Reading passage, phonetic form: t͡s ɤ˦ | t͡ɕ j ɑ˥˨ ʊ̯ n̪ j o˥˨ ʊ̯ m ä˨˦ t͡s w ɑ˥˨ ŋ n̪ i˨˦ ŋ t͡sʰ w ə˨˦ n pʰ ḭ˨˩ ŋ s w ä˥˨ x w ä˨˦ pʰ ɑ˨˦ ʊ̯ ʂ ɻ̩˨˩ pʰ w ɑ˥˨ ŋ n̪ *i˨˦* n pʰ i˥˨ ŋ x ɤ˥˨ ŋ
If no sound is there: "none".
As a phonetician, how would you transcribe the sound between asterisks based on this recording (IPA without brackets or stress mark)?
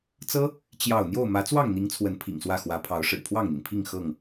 i˩